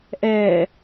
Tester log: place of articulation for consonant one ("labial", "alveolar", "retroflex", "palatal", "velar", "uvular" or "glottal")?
glottal